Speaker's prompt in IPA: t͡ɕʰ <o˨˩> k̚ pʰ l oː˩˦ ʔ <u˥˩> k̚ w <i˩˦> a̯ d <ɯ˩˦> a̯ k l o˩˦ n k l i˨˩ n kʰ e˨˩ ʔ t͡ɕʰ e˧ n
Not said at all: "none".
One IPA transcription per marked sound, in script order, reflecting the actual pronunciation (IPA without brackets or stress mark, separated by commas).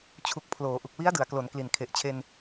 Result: u˨˩, u˨˩, i˦˥, ɯ˩˦